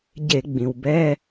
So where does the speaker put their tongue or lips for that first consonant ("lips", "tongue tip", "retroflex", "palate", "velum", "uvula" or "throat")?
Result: palate